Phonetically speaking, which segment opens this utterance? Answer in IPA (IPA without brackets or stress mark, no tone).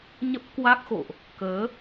ɲ